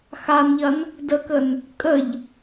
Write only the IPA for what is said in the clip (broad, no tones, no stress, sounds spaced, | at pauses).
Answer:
x a n ʎ ɐ n | d ə k ə n | kʼ ə ʎ